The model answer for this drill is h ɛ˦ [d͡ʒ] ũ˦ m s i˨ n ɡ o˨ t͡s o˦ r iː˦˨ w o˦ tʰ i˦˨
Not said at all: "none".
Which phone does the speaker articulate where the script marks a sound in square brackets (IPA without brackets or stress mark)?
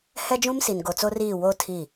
d͡ʒ